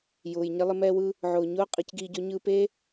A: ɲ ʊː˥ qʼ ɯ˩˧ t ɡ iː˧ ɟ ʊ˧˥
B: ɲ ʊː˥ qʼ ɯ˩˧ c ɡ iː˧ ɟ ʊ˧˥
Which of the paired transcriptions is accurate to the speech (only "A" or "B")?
B